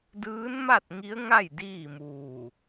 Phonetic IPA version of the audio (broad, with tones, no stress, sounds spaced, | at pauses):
d ɯː˧˥ n m a˥˨ t̚ ŋ i˧˥ ə̯ ŋ a˥˨ j d iː˥˨ m uː˧˩